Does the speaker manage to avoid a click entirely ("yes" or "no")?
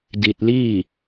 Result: yes